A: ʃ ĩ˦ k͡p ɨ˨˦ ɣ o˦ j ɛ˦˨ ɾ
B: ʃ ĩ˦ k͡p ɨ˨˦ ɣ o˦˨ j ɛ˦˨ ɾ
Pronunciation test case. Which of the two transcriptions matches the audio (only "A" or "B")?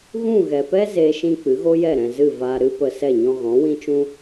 A